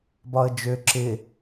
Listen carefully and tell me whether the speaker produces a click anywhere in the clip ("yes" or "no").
yes